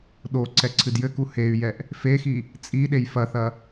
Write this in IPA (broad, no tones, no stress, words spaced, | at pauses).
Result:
ɗo ǀɛǀʰɨdjɘku hey̯jɛʔ | fexi | t͡sʼiɗej fɐθɐ